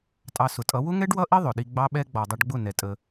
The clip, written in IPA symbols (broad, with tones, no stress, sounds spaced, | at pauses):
tʼ ɑ˧ s ʊ˨ tʼ ʌ˨˦ w ʊ˦ ŋ ɛ˦ ɖ w ʌ˦ ʔ i˦ ðˤ ʊ˨ ɗ i˧ ɡ͡b ɑ˦ ɓ ɛ˦ ɡ͡b ɔ˨ dˤ ʌ˧ ɖ ɡ͡b ʊ˦˨ n ɛ˧ tʼ ə˧